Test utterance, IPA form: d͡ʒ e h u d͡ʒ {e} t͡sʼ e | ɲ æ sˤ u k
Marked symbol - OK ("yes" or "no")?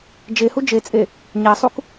yes